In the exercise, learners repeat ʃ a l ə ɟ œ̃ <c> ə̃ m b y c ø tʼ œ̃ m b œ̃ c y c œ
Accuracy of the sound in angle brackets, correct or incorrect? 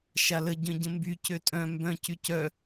incorrect